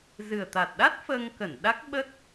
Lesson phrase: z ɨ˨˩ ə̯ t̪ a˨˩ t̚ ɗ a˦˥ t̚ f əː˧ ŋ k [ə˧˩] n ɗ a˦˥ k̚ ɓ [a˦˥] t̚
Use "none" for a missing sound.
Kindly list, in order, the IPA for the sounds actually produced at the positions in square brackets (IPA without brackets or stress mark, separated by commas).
ə˧˩, ə˦˥